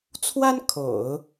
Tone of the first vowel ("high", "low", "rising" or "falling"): high